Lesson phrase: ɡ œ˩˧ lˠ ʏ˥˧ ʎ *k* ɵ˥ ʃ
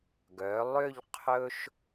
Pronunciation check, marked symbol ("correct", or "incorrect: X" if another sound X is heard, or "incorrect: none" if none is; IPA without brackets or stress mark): incorrect: qʰ